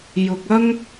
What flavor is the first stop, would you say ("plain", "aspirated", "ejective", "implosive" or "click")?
plain